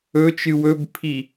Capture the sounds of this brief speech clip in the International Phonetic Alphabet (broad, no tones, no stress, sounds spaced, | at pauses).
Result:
ɵ t͡ʃ ɨ w ɵ b pʰ i